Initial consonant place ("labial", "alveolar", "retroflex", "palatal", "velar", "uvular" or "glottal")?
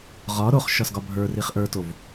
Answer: uvular